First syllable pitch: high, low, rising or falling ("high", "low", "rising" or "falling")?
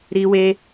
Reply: high